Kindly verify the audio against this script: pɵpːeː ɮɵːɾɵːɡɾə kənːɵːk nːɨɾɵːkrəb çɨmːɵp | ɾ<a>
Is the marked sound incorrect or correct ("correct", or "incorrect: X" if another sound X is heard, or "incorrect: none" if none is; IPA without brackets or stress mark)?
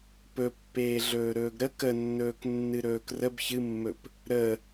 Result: incorrect: ə